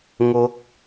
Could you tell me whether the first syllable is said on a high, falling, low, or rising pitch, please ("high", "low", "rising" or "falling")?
rising